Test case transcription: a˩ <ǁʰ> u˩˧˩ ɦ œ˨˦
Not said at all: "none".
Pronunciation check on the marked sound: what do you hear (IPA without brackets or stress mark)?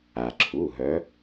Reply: ǁʰ